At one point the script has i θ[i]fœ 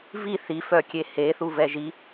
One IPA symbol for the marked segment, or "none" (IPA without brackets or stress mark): i